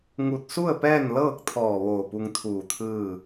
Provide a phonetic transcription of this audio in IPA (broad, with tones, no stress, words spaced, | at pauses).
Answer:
ŋu˧˩t̚su˥˨ə̯ pɛː˥˨n lɤː˥˨k̚t̪ʰɔː˧˩ ʋoː˧˩pu˧ŋt̪ʰuː˧˩t̪ʰɯː˥˨